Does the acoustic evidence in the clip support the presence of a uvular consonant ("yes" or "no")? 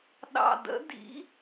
no